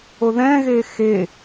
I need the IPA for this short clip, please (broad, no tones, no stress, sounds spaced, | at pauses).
o ð ɛ̃ ɣ e x e